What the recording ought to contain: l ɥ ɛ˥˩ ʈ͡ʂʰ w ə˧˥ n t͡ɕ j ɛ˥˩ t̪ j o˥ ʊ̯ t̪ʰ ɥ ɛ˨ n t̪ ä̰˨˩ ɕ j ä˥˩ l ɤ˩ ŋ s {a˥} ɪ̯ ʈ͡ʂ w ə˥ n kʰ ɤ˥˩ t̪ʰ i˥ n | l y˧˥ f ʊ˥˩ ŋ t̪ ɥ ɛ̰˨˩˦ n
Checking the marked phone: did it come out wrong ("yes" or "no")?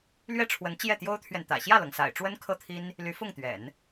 yes